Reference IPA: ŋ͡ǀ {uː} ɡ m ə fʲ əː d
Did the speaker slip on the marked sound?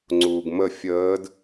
no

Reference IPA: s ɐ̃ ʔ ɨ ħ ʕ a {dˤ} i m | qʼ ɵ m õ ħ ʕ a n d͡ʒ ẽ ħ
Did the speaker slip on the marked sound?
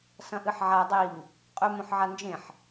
no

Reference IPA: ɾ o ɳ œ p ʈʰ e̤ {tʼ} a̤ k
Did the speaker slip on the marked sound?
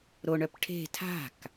yes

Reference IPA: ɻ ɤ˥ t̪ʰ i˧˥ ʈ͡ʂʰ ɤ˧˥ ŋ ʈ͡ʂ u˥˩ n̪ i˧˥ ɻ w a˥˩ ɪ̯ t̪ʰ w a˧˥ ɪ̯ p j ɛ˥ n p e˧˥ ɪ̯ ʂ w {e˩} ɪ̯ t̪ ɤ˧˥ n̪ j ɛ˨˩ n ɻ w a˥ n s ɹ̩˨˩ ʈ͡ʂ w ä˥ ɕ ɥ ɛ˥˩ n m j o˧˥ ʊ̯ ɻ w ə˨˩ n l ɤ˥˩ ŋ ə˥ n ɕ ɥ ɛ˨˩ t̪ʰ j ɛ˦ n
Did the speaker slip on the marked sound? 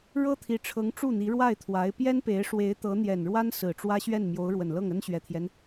yes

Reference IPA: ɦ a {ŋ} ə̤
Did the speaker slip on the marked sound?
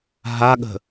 yes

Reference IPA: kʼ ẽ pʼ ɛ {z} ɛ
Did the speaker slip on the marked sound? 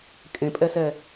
yes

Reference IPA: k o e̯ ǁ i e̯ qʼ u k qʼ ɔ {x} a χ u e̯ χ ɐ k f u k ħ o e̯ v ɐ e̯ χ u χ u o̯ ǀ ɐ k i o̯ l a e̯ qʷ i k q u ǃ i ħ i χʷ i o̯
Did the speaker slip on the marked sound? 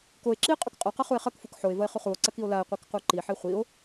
yes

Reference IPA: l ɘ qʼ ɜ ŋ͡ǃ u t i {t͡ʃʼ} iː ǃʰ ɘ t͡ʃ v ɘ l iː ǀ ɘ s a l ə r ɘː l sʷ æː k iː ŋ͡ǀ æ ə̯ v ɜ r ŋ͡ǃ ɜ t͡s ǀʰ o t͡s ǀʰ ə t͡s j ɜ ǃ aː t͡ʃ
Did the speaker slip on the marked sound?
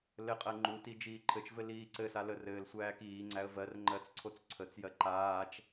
yes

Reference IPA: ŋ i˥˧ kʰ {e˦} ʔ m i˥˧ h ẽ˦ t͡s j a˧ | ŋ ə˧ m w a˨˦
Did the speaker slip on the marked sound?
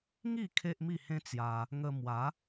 no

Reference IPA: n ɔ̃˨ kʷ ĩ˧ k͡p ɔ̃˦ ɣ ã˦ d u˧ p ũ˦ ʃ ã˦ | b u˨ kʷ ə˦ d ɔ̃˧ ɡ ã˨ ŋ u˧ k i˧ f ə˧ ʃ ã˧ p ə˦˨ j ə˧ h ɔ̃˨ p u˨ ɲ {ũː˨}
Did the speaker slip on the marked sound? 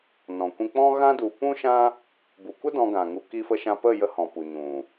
yes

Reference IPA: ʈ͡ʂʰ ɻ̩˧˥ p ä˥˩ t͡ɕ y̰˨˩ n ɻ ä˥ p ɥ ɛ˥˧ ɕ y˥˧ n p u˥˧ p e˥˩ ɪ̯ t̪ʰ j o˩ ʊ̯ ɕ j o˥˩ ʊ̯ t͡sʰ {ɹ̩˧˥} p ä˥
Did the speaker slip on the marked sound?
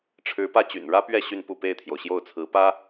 no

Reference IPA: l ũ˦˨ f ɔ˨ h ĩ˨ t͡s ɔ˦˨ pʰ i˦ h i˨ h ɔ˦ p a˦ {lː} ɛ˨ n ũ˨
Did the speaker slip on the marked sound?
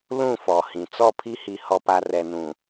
yes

